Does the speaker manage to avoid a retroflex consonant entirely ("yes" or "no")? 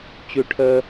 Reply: no